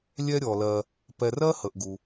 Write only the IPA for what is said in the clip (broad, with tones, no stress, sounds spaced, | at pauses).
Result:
lʲ ɛ˦ ɾʲ ɔ˩ l ɜ˨ | p ɛ˨ r ɜ˥ h ə˩ ʔ ɡ u˩